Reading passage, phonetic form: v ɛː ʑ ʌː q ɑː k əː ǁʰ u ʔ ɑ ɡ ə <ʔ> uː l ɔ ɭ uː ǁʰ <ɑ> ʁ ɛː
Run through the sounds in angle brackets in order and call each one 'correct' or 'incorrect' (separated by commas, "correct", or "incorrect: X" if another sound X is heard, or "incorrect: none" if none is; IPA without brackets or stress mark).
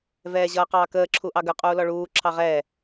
incorrect: qʼ, correct